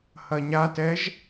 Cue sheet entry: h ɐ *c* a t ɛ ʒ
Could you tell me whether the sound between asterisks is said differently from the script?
yes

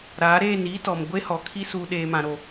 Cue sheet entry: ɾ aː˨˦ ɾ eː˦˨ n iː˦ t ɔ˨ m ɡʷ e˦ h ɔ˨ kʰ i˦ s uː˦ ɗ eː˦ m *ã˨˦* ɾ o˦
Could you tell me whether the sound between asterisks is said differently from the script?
yes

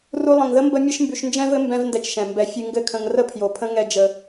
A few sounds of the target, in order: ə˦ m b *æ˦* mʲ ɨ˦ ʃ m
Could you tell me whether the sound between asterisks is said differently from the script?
yes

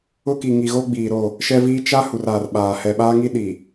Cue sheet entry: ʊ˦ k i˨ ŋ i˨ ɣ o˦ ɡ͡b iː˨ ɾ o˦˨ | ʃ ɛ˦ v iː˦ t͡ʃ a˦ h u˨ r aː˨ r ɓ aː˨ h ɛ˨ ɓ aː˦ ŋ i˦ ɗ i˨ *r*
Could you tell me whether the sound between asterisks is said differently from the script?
yes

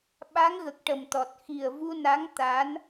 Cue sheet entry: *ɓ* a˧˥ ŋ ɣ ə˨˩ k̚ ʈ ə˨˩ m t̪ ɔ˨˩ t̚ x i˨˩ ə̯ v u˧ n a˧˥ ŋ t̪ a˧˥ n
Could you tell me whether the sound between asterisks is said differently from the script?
no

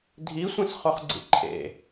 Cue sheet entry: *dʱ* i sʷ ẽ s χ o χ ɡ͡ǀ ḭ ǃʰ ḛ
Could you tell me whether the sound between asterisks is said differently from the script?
no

